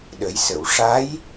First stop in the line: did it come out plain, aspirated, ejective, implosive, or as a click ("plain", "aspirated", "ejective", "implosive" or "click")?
implosive